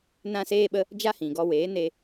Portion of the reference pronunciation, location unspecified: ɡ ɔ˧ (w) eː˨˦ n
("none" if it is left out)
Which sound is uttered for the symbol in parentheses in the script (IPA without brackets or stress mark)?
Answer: w